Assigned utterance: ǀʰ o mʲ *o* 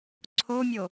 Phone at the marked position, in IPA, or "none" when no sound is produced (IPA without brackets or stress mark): o